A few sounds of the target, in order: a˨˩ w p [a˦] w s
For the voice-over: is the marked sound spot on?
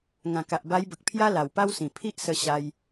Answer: yes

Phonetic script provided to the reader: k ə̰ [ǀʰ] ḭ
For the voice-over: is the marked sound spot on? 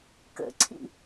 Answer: yes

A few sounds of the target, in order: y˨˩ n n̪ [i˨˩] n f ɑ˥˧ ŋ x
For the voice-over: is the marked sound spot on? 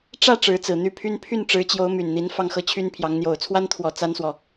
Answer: no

